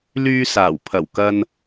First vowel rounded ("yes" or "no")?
yes